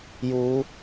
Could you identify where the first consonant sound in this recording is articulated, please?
palatal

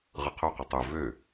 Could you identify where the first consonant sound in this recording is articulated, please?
uvular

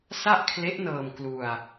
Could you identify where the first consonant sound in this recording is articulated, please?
alveolar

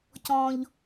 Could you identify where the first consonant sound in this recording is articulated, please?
palatal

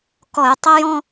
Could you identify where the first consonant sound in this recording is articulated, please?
velar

